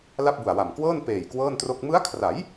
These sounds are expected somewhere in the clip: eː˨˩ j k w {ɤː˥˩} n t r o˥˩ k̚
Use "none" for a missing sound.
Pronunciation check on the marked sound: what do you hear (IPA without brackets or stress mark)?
ɤː˥˩